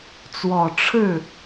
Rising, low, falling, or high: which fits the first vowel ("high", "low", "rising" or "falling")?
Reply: low